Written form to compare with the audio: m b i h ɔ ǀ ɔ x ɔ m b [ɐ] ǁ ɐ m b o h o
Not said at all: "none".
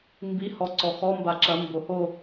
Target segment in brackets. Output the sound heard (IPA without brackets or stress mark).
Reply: a